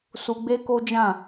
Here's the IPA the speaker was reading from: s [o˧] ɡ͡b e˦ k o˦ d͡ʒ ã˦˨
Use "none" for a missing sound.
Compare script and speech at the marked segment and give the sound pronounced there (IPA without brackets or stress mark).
u˧